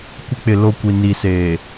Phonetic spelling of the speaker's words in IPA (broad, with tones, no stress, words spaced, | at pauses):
kʷɪ˦k͡pɪ˨ lo˦˨kʷi˨ ni˨seː˨